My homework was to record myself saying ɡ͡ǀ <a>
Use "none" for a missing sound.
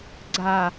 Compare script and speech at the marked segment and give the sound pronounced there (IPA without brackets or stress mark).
a